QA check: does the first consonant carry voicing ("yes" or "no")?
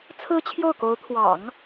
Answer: no